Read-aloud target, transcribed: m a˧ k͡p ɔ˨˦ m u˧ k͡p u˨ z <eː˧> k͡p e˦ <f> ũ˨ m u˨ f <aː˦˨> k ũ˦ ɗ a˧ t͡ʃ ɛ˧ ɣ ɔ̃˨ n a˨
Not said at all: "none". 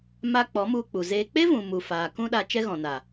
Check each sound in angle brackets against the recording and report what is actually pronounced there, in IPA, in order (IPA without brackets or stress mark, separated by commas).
eː˧, v, aː˨